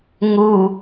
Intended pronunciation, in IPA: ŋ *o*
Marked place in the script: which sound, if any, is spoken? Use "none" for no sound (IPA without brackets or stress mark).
u